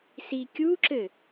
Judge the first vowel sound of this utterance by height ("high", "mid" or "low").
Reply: high